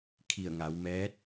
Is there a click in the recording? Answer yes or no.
no